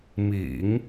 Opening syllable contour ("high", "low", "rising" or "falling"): low